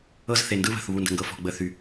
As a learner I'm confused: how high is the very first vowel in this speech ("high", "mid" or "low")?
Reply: mid